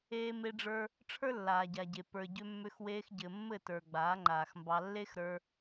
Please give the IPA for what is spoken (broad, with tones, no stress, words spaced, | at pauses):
eː˧me˧ɖ͡ʐə˞˧ | ʈ͡ʂʰə˞˦lːaː˨ɟa˨ɟe˨ pə˞˨ɟʏ˧mːʏ˧x weː˧xɟɘ˨ mːɘ˦˨tə˞˨ ɡ͡baː˨˦ŋ͡ǃaː˨xmbɑ˧ lːe˦xɾə˞˧